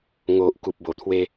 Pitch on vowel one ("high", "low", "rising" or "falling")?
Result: low